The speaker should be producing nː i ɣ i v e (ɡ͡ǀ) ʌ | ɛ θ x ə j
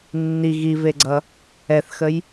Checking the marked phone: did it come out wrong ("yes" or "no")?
no